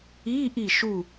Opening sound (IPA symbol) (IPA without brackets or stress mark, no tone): i